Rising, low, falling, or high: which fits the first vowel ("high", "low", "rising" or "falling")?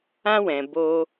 high